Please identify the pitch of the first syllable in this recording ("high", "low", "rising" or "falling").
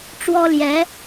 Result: high